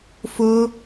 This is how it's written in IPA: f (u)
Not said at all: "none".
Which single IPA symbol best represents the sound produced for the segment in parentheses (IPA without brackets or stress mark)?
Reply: ʊ